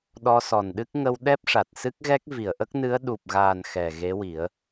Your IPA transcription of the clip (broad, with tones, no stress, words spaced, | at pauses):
ɗɔ˧sɔ˨˩nɗɨ˦˥k̚ ŋə˧w ɗɛ˦˥p̚ʂa˨˩t̚sɨ˦˥k̚ɣɛ˦˥k̚ vi˨˩˨ə̯ʔə˦˥k̚nɨ˧˥ə̯ ɗu˨˩p̚ɣaː˨˩n xɛ˨˩ɣe˧˥wi˨˩˦ə̯